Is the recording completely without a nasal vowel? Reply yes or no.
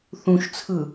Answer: no